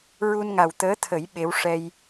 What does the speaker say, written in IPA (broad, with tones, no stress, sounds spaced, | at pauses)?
ɹ u˧ n ŋ a˨˩ w t̪ əː˧˥ t̪ʰ ə˨˩˦ j ɓ e˧˥ w ʂ ɛ˧ j